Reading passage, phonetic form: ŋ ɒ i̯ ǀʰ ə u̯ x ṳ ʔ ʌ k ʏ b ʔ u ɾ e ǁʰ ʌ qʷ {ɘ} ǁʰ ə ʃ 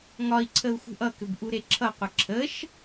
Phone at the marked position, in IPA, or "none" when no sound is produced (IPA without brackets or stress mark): ɘ